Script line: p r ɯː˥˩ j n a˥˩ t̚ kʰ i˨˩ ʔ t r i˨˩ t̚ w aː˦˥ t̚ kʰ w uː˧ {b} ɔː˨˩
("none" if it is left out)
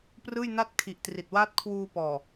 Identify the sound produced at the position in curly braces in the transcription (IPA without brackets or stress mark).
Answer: p